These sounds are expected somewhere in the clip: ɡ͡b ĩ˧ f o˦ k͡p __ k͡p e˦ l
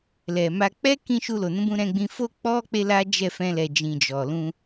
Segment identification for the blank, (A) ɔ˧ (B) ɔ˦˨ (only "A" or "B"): A